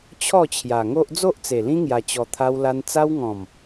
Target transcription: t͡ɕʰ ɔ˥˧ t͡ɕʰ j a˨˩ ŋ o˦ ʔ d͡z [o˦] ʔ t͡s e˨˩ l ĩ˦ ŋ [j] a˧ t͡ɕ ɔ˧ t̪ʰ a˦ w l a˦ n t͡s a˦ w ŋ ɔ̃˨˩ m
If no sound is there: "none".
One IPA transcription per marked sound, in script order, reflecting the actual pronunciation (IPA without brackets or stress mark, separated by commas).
o˦, j